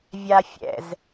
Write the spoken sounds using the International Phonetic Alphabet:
vʲ a fʲ ɛ̰ z

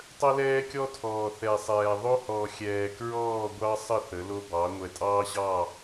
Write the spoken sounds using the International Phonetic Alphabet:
tˤ ə˦ l ɛː˦ kʲ ɔ˦ tʰ ɔː˨ θ ɛ˨ sˤ ɛː˨ ðˤ o˦ h ɔ˨ xʲ ɛː˨ k ɹ ɔː˦˨ ɡʷ ɑ˦ sˤ ə˦˨ θ ə˨˦ l o˦ b ɑ˨˦ ŋʷ ɛ˨ tʼ ɑː˦ ɕ ɑ˦˨

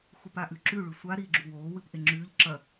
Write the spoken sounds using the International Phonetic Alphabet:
x u p a ʔ ʉ ǁ ʉ ɭ ʉ sʷ a ɾ iː ɡ͡ǁ u w oː w ɨ p ʔ e ŋ͡ǁ ʉː ʎ ǁ ɐ

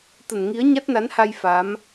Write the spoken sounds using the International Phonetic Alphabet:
t̪ ə˧˩ n ŋ i˨˦ ə̯ ɲ a˦˥ t̚ n a˨˦ n h a˧ j f a˨˦ m

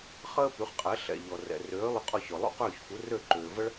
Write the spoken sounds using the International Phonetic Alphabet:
χ əː˥ p y˩˥ χ qʼ ɛ˩˥ ɬ ɛ̰˩ ʎ ɔ˩ r ɛ̰˩ r øː˩˥ lˠ y˧ qʼ ɔ˧ ç ɔ˩ lˠ ṵ˥˩ q øː˥˩ ç f u˩˥ r ø˥˩ ǃ øː˩ v ə˥ ɭ

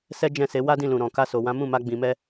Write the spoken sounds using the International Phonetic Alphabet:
s ɛ˦ d͡ʒ ɛ̃˦˨ s e˨˦ w a˦ d ĩ˦˨ l ũ˨ ɾ ɔ̃˨ k a˧ s o˨ w ã˨˦ m ũ˦˨ m a˧ ɡ͡b ĩ˨ m ɛ˧

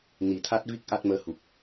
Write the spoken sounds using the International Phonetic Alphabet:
n i˨˩˦ t̪ʰ a˦˥ t̚ v i˦˥ k̚ ʔ a˦˥ t̚ m əː˧ h u˨˩ k̚

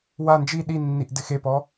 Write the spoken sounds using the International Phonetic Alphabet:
w a n d͡ʒ i ɗ i nː i ʔ d ɪ x e p ɔ

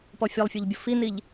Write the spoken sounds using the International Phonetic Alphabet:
p ɔ fʲ ɛ lˠ fʲ o ʎ bʲ ʊ f i n i ʎ

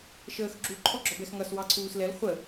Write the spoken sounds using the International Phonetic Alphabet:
ʃ əː x ɡ͡ǁ u ǃʰ ɔ ɡ͡ǁ ɔ b ɛ x ŋ ʌ s w ɑ ǀʰ uː s l ɛ l χʷ ə

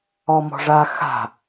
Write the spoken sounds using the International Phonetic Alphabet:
ɔ m ɔ̤ ʐ a x a̤

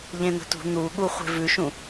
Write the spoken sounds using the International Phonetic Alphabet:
ʎ ẽ n̪ ə̤ t ṳ n̪ u ɠ u χʷ e̤ v ʉ ʃ ũ

